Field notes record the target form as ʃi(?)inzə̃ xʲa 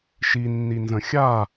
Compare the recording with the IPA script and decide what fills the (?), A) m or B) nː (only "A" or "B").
B